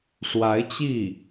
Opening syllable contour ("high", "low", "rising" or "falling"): rising